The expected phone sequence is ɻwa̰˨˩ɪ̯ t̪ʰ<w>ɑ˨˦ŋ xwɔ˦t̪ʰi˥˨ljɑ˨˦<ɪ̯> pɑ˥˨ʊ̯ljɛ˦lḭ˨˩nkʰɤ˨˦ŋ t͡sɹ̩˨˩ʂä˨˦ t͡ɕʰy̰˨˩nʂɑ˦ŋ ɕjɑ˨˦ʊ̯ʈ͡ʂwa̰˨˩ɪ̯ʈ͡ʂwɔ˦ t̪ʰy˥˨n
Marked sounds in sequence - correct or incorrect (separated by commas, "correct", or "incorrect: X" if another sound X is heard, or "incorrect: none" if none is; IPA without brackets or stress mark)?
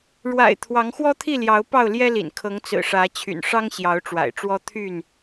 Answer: correct, incorrect: ʊ̯